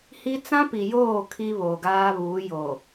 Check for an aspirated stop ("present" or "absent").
present